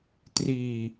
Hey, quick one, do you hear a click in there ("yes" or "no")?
no